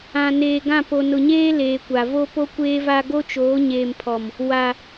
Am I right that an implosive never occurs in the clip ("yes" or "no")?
yes